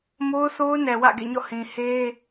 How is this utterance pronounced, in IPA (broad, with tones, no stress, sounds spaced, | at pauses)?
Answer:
m o˦ ʊ̯ θ o˦ ʊ̯ n ɛ˨ w ä̰˦˨ ɡ ḛ˦˨ ɲ ɔ̰˦˨ h ĩ˨ h e˦